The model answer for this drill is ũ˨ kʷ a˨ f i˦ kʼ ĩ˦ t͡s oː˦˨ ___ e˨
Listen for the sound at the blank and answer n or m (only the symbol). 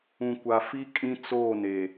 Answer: n